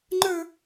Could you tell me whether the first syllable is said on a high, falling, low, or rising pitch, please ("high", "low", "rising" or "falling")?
high